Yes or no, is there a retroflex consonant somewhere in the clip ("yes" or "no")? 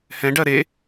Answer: yes